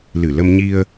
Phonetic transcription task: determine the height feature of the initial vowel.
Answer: high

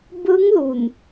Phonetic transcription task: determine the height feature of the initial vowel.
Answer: high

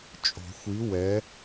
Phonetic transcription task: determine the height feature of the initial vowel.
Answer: mid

